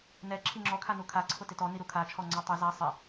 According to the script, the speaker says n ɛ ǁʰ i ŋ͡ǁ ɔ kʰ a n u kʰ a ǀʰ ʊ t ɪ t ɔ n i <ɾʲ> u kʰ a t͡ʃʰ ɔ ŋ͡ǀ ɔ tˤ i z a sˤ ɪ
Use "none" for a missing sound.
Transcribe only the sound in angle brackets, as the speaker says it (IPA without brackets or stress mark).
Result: ɾ